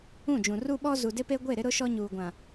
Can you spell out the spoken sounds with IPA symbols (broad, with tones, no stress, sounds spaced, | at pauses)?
ũ˦˨ d͡ʒ ũ˨ r u˦ ɓ ɔ˦ z u˨ d ɪ˦ p e˦ ɡʷ e˦˨ ɾ ɪ˦ ɾ ʊ˦ ʃ ɔ˦ ɲ uː˨ ɡʷ ã˨